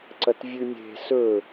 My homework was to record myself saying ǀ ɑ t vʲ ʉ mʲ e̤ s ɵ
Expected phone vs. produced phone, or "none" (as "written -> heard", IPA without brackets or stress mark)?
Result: ɑ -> ɐ